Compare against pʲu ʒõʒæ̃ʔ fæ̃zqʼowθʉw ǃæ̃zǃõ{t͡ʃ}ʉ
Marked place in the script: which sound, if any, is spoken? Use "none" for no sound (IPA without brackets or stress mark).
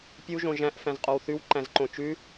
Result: t͡ʃ